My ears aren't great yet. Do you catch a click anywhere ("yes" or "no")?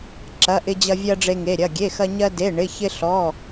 yes